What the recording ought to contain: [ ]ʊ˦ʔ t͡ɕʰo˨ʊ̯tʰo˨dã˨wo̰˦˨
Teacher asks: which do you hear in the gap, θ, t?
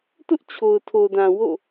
t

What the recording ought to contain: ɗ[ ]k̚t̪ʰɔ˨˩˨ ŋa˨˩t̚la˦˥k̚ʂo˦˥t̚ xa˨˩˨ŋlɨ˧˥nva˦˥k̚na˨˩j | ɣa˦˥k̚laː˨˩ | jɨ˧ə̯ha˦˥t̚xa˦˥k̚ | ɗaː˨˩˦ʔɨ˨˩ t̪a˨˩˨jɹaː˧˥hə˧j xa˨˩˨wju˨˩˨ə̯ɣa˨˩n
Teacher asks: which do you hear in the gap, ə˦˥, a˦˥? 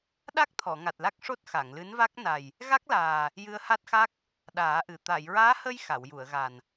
a˦˥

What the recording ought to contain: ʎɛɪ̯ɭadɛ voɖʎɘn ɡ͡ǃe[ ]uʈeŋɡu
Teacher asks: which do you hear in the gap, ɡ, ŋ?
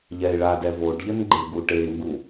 ɡ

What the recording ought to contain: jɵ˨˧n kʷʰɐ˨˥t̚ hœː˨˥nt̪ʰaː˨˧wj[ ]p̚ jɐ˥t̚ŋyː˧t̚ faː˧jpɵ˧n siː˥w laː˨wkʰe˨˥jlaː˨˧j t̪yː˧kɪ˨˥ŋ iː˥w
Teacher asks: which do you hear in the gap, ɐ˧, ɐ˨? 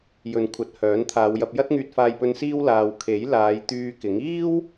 ɐ˧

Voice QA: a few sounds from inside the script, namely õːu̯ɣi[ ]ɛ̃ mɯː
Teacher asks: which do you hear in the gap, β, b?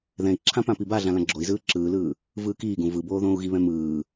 β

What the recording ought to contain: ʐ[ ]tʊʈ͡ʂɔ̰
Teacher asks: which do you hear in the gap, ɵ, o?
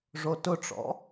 o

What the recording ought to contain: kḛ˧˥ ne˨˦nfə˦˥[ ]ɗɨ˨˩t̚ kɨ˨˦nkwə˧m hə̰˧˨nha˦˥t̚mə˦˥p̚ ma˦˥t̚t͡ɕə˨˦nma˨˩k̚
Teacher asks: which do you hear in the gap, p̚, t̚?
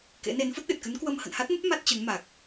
t̚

